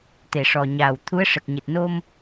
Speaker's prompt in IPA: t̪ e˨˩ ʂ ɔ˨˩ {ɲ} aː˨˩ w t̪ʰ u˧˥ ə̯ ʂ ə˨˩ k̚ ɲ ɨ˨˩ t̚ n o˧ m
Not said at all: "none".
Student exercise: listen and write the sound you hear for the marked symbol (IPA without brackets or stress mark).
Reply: ɲ